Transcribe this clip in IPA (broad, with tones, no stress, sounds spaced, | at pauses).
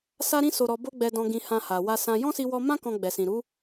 s a˦ ɾ ĩ˦ s o˧ ɾ ɔ˧ b o˦ ɡ͡b ɛ˧ d ɔ̃˧ ɡ ĩ˧ h ã˧ h a˨ w a˧ s ã˧ j ɔ̃˦ s i˧ w ɔ˧ m ã˦ k ɔ̃˧ ɡ͡b ɛ˨ s ĩ˨ ɾ u˨˦